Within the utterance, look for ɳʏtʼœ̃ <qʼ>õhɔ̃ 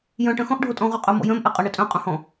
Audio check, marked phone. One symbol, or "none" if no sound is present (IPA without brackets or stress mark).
qʼ